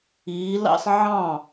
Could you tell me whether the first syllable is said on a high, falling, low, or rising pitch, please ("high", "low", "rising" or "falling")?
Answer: rising